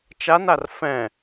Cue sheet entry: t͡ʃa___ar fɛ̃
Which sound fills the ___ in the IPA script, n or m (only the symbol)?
n